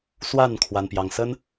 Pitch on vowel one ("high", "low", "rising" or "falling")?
falling